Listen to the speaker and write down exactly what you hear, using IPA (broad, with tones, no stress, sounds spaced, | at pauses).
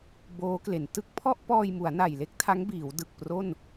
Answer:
b oː˦˥ k l e˩˦ n t ɯ˦˥ k̚ pʰ ɔ˥˩ ʔ p ɔː˧ j m u˩˦ a̯ n a˨˩ j l e˥˩ k̚ tʰ a˦˥ ŋ b iː˩˦ w d ɯ˨˩ k̚ p r o˥˩ n